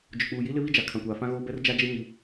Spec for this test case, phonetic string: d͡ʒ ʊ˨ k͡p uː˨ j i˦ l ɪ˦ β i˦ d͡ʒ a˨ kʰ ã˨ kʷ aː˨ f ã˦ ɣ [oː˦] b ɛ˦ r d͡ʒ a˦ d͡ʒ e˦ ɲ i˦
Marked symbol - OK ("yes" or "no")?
yes